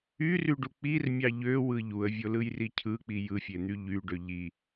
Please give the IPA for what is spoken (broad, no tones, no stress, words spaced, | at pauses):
yryɖu k͡pirmʲɑ ʎøwɯ ʎuə̯vʲolɯjri cʰɯk͡pi jɯfʲen̪y ʎyɖø ʎi